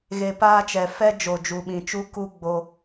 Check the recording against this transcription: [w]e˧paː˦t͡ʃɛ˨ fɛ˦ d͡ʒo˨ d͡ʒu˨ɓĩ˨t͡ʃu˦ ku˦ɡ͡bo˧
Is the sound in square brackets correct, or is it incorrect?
incorrect